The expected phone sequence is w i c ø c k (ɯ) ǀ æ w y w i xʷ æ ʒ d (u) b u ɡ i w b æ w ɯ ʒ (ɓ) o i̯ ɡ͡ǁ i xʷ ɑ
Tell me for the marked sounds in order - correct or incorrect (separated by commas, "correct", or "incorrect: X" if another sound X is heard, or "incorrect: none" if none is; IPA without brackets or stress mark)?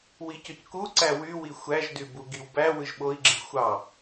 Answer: incorrect: u, incorrect: y, correct